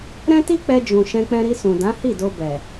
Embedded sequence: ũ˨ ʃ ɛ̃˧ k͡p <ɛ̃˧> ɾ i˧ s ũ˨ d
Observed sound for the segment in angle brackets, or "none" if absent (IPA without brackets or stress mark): ɛ̃˧